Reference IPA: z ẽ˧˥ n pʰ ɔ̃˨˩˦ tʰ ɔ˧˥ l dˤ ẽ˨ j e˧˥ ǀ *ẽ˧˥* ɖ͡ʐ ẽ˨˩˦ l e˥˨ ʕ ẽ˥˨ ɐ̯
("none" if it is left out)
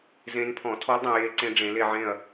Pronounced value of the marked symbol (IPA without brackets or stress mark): ẽ˧˥